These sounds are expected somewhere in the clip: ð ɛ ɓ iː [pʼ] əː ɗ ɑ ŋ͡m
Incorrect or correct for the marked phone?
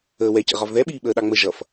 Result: incorrect: ɓ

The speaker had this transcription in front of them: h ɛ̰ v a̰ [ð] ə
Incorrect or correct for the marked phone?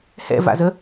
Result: incorrect: z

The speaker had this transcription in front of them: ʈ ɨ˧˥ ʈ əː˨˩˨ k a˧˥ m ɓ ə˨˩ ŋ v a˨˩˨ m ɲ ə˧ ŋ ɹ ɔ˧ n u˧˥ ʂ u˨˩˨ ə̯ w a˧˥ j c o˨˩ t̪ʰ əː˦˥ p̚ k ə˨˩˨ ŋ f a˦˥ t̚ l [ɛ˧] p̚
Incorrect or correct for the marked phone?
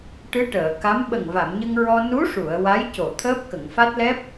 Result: incorrect: ɛ˦˥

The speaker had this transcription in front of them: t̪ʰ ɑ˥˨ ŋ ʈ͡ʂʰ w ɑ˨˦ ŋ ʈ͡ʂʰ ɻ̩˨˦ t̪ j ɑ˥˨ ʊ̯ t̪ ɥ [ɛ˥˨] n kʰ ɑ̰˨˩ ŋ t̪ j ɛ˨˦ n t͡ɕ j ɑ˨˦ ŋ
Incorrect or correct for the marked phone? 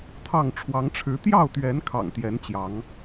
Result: incorrect: ɛ˨˦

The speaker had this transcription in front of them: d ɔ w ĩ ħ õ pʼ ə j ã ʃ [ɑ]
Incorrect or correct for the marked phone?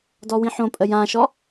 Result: incorrect: ɔ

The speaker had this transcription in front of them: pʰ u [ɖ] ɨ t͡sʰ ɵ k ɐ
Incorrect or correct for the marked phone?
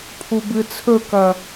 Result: incorrect: b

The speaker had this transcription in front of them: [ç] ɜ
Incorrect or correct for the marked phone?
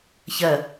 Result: correct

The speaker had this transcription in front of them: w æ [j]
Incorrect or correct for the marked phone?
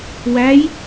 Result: correct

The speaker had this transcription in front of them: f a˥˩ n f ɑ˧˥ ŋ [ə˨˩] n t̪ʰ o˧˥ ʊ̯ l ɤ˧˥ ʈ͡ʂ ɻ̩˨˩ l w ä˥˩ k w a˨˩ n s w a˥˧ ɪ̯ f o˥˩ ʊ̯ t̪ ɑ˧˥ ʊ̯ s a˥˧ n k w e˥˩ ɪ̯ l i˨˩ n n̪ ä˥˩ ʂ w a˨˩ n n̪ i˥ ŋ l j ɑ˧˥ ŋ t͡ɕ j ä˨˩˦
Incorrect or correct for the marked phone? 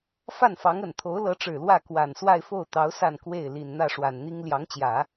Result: correct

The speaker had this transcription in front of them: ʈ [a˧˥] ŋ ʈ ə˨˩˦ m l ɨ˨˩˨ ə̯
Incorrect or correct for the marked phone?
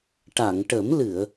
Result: incorrect: a˨˩˨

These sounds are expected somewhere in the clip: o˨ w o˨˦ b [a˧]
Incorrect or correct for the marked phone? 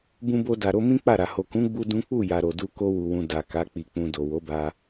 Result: correct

